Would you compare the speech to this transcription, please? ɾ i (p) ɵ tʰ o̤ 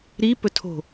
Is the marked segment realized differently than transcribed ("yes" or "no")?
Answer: no